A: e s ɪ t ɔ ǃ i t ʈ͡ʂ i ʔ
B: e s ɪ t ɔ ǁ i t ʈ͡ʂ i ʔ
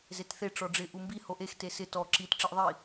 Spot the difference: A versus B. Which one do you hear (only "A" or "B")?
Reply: B